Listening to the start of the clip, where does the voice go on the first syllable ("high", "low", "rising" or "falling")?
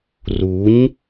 rising